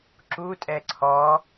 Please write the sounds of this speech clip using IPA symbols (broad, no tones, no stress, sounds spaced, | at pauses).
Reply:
ǁ u tʼ ɛ ǀʰ ɔ